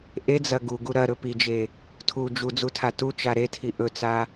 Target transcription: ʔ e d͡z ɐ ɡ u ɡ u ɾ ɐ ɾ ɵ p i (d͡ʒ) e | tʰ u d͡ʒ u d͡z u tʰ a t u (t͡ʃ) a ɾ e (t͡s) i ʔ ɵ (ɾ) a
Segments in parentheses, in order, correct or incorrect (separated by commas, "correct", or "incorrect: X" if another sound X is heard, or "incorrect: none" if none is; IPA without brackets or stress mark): correct, correct, incorrect: tʰ, incorrect: t͡s